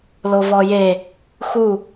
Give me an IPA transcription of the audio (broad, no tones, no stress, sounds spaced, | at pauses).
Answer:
l o v ɔ j e | x u